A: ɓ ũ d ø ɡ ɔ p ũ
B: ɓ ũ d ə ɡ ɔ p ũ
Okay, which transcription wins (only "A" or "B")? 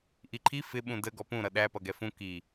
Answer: B